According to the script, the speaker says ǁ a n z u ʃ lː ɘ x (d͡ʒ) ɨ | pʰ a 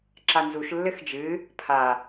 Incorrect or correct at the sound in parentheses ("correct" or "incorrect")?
correct